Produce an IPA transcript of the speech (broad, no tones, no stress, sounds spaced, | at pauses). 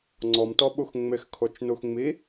ŋ͡ǀ ɔ m t ɔ ɓ u x ŋ͡m ɪ x kʰ o t͡ʃ n u x ŋ͡m i